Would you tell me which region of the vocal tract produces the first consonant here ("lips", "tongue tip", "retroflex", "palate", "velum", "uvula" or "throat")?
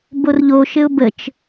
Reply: lips